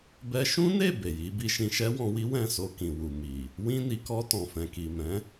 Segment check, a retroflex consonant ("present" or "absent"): absent